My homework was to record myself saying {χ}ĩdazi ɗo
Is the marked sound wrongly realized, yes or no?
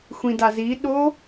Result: yes